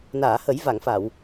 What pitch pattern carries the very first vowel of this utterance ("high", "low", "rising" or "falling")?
low